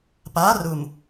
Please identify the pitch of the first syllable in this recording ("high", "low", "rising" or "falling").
rising